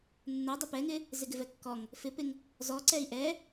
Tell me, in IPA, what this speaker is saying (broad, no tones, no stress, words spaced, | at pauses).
nːɛ dˤɛpɛŋɪ | zɪɡɪvɛkːɔŋ | fɪpɪŋ | zɔ ǀɛi̯ʔɛ